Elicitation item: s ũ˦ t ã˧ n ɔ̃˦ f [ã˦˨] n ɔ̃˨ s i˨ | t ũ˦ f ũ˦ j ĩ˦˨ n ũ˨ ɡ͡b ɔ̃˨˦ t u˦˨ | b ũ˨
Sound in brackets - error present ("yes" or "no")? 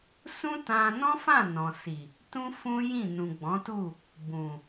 no